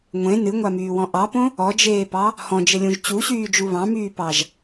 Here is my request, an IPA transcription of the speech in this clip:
ŋʷẽ nɨŋʷamyːwɔ̃ ʔɑpõ | ɔd͡ʒeːpɑ | hɔ̃d͡ʒɘlʲũʒ t͡ɕuɕyːd͡ʒu βɑ̃myːpɑʒ

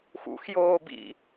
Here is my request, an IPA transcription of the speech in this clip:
xṵx joːbḭ

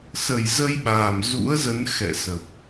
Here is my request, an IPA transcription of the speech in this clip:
sə˨˩jzə˧jɓaː˨˩m zṵ˧˥ə̯zə˨˦n xɛ̰˧˨sə˨˩p̚

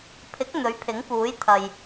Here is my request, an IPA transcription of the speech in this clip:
pʰɪ˨˥k̚ n̪ɵ˨˥ɥpʰɪ˨˥ŋpuː˨˥j t̪ʰɐ˨j

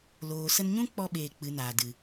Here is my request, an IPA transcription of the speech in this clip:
loː˨sə˧nɲũ˦k͡pɔ˧ ɓeː˧k͡pɨ˨˦naː˨dɨ˨

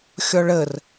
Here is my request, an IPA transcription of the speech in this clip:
xʲɔɭər

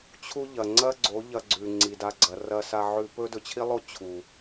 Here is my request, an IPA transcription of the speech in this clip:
t͡ɕʰu˦ʎɐ˨ ŋ͡ǀɐ˦ɡ͡ǀo˨˦ ʎɐ˧ɡ͡ǀʉ˨ ŋ͡ǀi˨da˧ ɡ͡ǀɐ˨rɐ˧ sa˧ʕʉ˧ pɵ˦dɵ˧t͡ɕʰi˦lˠo˦ t͡ɕʰu˨

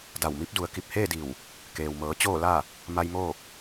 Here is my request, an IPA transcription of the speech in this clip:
da˧˩wmi˧˥p̚du˩˧ə̯ ki˧˩p̚heː˥˨di˧˩w | keː˩wmɤː˩˧ t͡ɕoː˥˨la˥˨ | ma˧j moː˥˨k̚

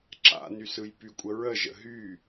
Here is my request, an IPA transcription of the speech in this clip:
ǁa̰ny sɯjpykʷʼə ɹəʒə̰ ɦy

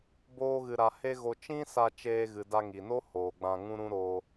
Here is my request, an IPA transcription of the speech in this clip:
boː˦ɣɨ˧ɾa˧ he˦ɣo˧ t͡ʃĩ˦sa˧ t͡ʃeː˧ɣɨ˨da˧ ŋi˨no˦ hoː˨ɡ͡bã˧ŋũ˦ɾũ˦ ɾoː˧

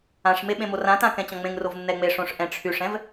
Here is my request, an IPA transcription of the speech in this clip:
ãʂme ɓẽmorãtã kɛ̃t͡ɕɔ̃ŋ͡mẽŋrov nːɛŋ͡meʂõʂ ʔɛ̃ʈ͡ʂʰyʂɛ̃v

